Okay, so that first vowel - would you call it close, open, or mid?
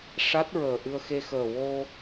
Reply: open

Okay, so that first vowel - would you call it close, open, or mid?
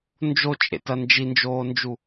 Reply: mid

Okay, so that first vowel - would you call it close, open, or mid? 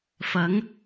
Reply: open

